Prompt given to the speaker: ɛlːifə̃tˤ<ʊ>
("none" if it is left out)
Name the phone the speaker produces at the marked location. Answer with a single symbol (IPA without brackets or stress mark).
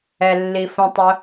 ʊ